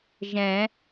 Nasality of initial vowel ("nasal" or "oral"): nasal